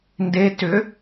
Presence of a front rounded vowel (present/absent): present